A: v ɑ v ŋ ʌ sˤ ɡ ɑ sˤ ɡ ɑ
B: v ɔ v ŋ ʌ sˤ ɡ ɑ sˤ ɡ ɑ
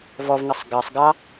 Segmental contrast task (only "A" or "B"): B